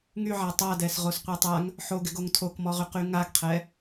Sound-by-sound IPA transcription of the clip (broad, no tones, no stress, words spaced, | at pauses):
ŋyʕa tˤadɛs ʁosqʷɛtˤaŋ | ħoɡɪɡoŋ tʰokmɔʁyqy ŋaɡqʰɛ